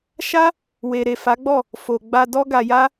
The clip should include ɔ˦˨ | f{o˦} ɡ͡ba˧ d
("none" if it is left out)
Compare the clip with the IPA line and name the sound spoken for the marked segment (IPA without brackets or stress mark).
o˨